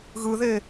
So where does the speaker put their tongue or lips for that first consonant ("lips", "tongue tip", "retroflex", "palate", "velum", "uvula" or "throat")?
velum